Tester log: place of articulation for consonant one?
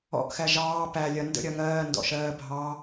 glottal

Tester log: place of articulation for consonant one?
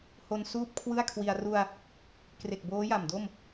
glottal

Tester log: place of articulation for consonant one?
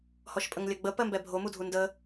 glottal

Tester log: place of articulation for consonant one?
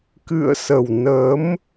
velar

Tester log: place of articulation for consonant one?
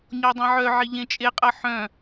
palatal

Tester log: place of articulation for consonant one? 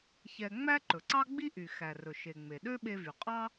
palatal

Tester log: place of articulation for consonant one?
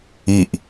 glottal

